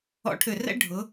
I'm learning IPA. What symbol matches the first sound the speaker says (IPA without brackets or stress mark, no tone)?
ɔ̰